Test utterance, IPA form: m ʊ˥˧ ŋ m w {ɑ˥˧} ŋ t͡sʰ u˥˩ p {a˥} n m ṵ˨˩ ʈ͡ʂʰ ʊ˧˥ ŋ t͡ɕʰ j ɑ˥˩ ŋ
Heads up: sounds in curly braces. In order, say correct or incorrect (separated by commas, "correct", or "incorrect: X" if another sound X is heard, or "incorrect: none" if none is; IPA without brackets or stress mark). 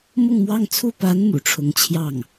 correct, incorrect: a˧˥